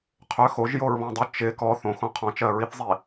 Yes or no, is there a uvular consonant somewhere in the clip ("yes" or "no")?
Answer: yes